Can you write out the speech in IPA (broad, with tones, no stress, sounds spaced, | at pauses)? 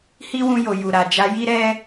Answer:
h i˦ w ũ˧ j o˨ j u˨ ɾ a˨ d͡ʒ a˧ j i˦ ɾ ɛ˦